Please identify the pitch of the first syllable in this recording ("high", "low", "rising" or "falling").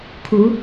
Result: rising